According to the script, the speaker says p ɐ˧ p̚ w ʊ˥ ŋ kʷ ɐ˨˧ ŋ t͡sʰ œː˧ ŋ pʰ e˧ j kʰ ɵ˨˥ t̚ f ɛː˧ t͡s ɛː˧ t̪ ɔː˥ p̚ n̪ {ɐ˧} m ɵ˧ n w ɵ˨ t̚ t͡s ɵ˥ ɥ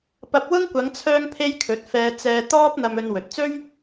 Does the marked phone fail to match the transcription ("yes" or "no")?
no